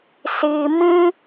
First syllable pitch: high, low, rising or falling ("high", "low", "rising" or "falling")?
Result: low